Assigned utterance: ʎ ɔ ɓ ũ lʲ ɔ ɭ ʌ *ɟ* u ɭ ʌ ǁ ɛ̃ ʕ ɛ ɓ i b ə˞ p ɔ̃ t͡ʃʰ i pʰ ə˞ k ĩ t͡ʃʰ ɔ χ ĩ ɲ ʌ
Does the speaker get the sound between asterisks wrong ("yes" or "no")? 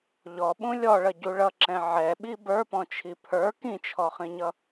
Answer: no